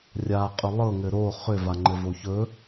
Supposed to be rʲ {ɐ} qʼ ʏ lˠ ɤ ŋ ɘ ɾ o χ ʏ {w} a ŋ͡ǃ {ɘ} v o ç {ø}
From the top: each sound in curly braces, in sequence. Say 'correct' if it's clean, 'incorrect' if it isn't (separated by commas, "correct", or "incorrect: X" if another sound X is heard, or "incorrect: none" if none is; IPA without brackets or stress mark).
incorrect: a, incorrect: v, correct, incorrect: ɵ